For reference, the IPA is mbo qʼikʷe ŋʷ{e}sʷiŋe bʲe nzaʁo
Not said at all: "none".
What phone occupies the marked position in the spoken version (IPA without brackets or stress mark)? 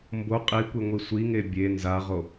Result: i